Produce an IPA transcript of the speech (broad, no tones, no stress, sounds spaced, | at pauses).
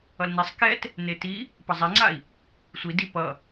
ʌ l n i sˤ k ɛ t | n e t i | p ʌ zˤ e ŋ͡ǀ a i̯ | sʷ i d i p ʌ